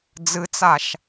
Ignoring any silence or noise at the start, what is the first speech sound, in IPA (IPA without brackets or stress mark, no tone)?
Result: d͡z